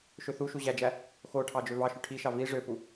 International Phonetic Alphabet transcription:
ʃøθuʃu ʑæd͡ʒæ | xoʈʰɑ d͡ʒøvɑʃy ʈʰiʃɑ vi ʐøpu

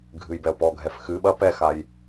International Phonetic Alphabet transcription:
ɡʱɨjbɛo̯pɔɡʱɛf xɨ ɓɐ pɛxaj

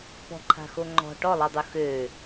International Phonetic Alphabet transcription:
pɔ̤ǃʰa̤xo ŋ͡ǃɔ̤ ʈɔlˠidˤu xø

